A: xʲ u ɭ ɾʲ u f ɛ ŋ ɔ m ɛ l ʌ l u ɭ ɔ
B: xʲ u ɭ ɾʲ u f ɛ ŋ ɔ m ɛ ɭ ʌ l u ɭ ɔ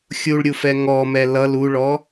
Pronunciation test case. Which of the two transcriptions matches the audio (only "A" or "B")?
A